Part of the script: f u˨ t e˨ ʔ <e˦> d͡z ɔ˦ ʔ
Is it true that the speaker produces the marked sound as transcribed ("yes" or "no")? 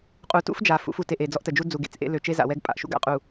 no